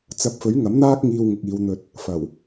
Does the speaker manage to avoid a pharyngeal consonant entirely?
yes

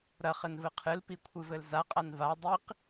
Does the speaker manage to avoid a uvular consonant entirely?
no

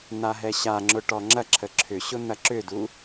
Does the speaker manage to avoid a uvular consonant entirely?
yes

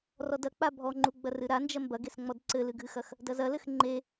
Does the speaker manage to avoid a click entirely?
no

